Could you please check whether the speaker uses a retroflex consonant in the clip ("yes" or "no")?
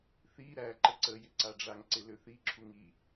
yes